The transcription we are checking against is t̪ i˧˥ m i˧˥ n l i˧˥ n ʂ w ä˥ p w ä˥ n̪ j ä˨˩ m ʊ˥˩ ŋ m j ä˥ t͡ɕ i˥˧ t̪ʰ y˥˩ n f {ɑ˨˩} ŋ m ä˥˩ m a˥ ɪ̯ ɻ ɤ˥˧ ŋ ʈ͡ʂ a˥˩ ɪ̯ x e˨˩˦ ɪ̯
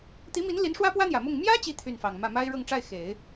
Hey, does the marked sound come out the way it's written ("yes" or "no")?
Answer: yes